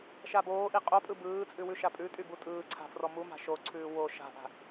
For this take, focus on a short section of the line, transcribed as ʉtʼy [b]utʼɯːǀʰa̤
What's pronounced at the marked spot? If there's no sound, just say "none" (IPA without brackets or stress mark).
b